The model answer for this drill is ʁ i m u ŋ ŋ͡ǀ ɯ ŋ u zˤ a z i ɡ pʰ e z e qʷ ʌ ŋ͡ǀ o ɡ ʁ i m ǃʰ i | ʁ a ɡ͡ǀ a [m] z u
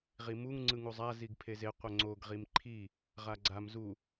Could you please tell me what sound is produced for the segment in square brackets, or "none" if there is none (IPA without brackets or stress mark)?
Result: m